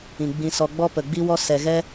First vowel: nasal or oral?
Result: nasal